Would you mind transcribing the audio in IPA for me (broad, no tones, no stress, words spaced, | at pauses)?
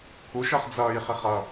kʰuʃɜχ d͡zʌːjχiχ ʌ